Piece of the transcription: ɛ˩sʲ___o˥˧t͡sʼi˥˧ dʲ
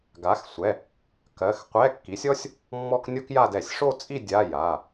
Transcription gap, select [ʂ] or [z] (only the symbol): ʂ